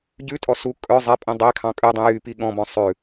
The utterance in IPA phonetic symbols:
ɟ ʉ tʼ ɔ s u kʼ œ zˤ ɛ pʼ ĩ dˤ e kʰ ɑ̃ kʼ ʉ dˤ ĩ j y p i ɠ ɔ̃ b ɔ̃ sˤ ʉ

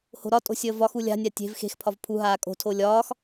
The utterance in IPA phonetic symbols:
h o̤ ɾ ɒ tʼ o̤ sʲ əː v ɒ x u lʲ a̤ nʲ a tʲ e̤ v x e̤ x pʰ ɒ v pʰ u ɦ aː kʼ o̤ tʰ o lʲ ɒː x

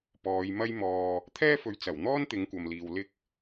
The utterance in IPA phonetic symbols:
p ɔː˨˧ j m ɐ˥ j m ɔː˨ | t̪ʰ ɛː˥ f ɵ˨˧ ɥ t͡s ɐ˨˩ w n̪ ɔː˥ n t̪ ɪ˨˧ ŋ kʷ ɐ˨ m l iː˨ w l ɪ˥ k̚

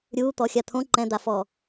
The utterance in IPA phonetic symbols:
ɾʲ u t̪ ɔ xʲ a t̪ʰ õ ǃ ɛ̃ d̪ a f ɔ

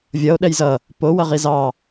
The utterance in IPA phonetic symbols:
vʲ ʌ o̯ ɗ ɛ j z ʌ | p o w ʌ ʁ i z ɑ

